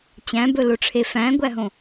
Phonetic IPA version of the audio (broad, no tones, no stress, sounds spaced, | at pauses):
t͡ɕ æ̃ b ɵ l o ʈ͡ʂʰ e f æ̃ ɡʷ æ ɦ õ